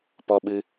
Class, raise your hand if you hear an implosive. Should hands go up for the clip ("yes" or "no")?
yes